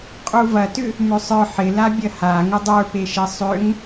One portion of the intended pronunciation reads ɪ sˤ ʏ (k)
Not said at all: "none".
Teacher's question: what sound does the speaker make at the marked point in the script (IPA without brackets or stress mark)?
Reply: ŋ